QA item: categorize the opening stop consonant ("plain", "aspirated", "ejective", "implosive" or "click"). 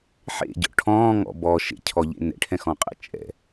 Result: plain